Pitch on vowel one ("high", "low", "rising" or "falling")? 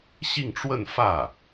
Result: falling